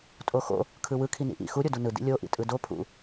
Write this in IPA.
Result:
tʼ o x o̰ | kʰ ɯ w ɯ kʰ i n ḭ ʔ ḭ x u ɾʲ o d u n ɯ d ḭ lʲ o ʔ ḭ tʼ ɯ d o pʰ ṵ

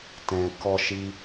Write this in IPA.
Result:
t ɛ̃˧ k ɔ˦ ʃ i˦

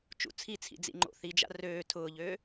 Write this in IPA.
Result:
t͡ʃ ṵ t͡sʰ i t͡sʰ ḭ d͡z ḭ ŋ͡ǃ o̰ θ i d͡ʒ a̰ r øː tʰ ʊː ʎ øː

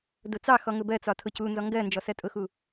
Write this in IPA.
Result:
d ʊ t͡s ɑ x ɔ ŋ ʊ b ɜ t͡s ɒ tʰ ʊ c u n z ɔ ŋ ɡ ɜ n d͡ʒ ɔ s ɜ tʼ ʊ x u

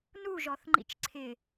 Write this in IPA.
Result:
n u ʒ ɔ θ ŋ͡ǃ ḭ t͡ʃ ǀʰ ɪ

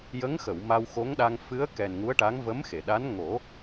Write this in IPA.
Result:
j ə˧˥ ŋ x ə˨˩˨ w m a˧ w x o˧˥ ŋ ɗ a˧ ŋ f ɨ˧˥ ə̯ k ɛ˨˩ n ŋ u˧˥ ə̯ ʈ a˧˥ ŋ v ə˧˥ m x e˨˩˨ ɗ a˧˥ n ŋ o˨˩˦

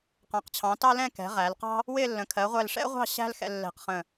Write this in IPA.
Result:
q ɑ̃˩˧ q t͡ɕʰ ɑ̃˩˧ t ɑ˥ l ɛ̃˥˧ k ɛ̤˩˧ ʁ æ˩˧ l q ɑ̤˥ | w ɪ˥˧ lː ə̃˩˧ kʰ ɜ˩˧ ʁʷ ɛ˧˩ l ʂ ɛ̰˥ ʁʷ ɑ̤˥˧ ɕ æ̤˥ l x ɛ̰˧ lː ɛ̤˧˩ q χ ə̃˧˩

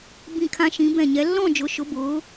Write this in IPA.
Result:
b ĩ˧˩ kʰ ã˧ ʃ ĩ˩˧ b ɛ̃˧˩ ɲ ɛ˩˧ lː ɔ̃˥˧ d͡ʒ ʊ˩˧ ʃ ʊ˩˧ b ʊː˩˧

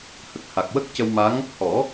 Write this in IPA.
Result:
h ə˨˩ k̚ h a˨˩ k̚ w ə˦˥ k̚ c ə˧ w m a˧˥ ŋ | h ɔ˨˩˦

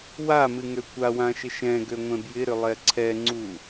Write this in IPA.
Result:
w a m ɨ ŋ ø kʷ a w ã ʃ ɪ ʃ ɛ̃ ɡ ø ŋʷ ɛ̃ b j ɪ ɾ ʏ lˠ ɛ ǀʰ ɛ ŋ͡ǀ u

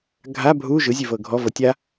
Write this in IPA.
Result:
ɡʱ a bʱ u ʒ ɯ zʲ e v ɤ ɡʱ ɔ v ɤ tʲ a

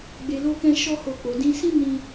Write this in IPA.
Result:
ɡ͡b e˧ l o˦ k ɛ̃˦ ʃ ɔ˦ h o˦˨ k͡p o˨˦ d ĩ˧ s ĩ˦ n ĩ˦

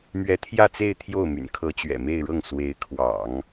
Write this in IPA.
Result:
m ɥ ɛ˧˥ t̪ʰ j ä˥˧ t͡s e˥˧ ɪ̯ t̪ʰ j o˥˩ ʊ̯ m y̰˨˩ n kʰ ɤ˧˥ t͡ɕ ɥ ɛ̰˨˩ m e˥˧ ɪ̯ ɻ ɤ˥˩ ŋ s w e˧˥ ɪ̯ kʰ w ɑ̰˨˩˦ ŋ

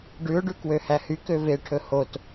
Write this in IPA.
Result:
ɖ ʉ ʊ̯ ɖ ʉ k w ø h æ h y k ø v e ʈʰ ɵ h o t

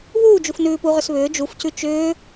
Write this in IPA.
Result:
β uː d͡ʒ u f n ʉː p u ʁ ʏ s β ʏː d͡ʒ u f c ʉ t͡ʃ ʏː

